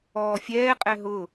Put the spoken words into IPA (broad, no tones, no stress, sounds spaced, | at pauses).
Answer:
ɔː fʲ ɛː qʼ ɛ ɦ ʊ